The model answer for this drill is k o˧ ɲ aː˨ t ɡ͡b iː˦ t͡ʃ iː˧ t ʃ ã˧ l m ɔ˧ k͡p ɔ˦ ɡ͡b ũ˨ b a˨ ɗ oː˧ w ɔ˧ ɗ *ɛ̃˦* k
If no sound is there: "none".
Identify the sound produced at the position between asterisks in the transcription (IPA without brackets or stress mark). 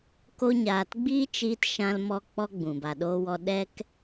ɛ˦